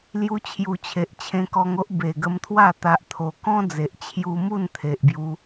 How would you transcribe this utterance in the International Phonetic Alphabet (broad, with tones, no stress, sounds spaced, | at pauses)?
l j u˧ t͡ɕʰ j u˨˩ t͡ɕʰ e˨ ʔ t͡ɕʰ ẽ˧ k ɔ˧ ŋ o˦ ʔ b e˨˩ ɡ ə˧ m t̪ʰ w a˥˧ t̪ a˦ ʔ t̪ʰ o˧ k ɔ̃˦ d͡z e˨ ʔ t͡ɕʰ j u˧ m u˥˧ n t̪ʰ e˨ ʔ b j u˧